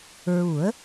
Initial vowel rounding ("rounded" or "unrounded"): rounded